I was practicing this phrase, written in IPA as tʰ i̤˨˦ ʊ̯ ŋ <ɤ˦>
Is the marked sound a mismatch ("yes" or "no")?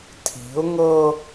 no